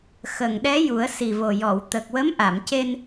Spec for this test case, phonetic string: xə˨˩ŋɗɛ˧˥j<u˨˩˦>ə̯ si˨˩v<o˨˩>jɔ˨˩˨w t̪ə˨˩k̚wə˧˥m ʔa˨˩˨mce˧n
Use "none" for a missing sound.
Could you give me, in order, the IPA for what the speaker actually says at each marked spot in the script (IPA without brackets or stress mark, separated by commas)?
u˨˩˦, o˨˩